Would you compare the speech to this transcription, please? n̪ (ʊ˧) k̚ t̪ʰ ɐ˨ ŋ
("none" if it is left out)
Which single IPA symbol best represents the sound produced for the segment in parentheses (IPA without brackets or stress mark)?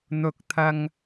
ʊ˨˥